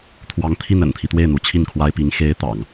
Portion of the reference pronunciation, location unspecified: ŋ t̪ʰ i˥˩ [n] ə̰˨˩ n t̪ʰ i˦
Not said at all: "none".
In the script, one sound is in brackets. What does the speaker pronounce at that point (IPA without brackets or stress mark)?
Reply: n